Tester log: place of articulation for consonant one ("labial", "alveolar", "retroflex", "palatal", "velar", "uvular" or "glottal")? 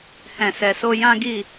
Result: glottal